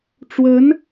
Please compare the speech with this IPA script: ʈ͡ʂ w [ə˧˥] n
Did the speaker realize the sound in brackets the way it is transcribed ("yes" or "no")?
yes